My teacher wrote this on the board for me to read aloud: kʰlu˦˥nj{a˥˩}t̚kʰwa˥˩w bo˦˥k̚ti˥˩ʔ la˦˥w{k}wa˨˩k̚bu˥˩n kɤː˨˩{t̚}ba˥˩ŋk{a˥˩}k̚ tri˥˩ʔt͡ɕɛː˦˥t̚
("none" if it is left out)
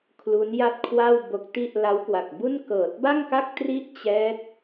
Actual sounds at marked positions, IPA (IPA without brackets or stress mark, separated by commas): a˥˩, k, t̚, a˥˩